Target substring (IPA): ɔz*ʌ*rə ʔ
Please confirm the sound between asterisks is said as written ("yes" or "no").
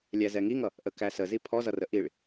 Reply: yes